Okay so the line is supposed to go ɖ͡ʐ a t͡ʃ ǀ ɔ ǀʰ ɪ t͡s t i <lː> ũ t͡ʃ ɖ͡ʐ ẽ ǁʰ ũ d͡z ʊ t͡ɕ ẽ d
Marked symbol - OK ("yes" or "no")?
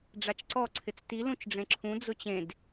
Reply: no